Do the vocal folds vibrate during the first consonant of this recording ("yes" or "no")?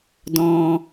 yes